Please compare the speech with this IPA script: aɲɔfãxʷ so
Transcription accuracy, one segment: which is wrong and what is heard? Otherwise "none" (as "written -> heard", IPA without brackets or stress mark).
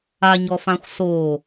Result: none